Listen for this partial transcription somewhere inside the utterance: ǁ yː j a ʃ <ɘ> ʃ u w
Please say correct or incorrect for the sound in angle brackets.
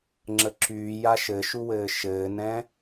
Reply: correct